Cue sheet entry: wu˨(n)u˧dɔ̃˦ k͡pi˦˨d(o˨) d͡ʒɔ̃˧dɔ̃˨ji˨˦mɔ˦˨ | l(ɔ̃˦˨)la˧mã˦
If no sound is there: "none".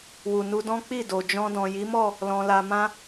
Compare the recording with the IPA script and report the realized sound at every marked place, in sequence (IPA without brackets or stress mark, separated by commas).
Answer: n, o˨, ɔ̃˧